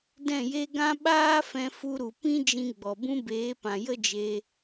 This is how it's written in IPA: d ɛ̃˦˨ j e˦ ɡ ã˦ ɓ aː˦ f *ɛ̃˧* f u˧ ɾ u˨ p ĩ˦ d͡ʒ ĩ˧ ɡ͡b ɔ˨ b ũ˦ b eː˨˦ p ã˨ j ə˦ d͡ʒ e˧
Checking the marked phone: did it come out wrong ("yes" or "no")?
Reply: no